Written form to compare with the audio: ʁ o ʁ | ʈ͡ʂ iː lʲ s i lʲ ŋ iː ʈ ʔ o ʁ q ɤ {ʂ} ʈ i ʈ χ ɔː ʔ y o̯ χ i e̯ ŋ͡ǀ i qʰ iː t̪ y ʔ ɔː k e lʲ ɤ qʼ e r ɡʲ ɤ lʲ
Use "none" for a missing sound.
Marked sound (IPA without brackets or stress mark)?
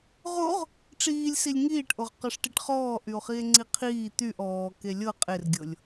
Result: ʂ